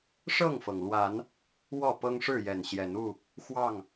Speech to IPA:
ʂ ɤ˥˨ ŋ f ɤ˩ ŋ l w a˨˦ n | w ɔ˥˨ p ɤ˦ ŋ ʂ ɻ̩˥˨ j ɛ˨˩ n ɕ j ɛ˨˦ n u˥˨ | x w ɑ˥˨ ŋ

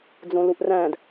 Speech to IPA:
d͡z õ l u ʔ r æ̃ d

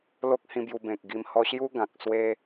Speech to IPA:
l o˦ k̚ h ĩ˧ b j u˧ b ẽ˨ k̚ ɡ i˧ m h ɔ˧ ɕ j u˦ ɡ ã˨ k̚ s w e˦

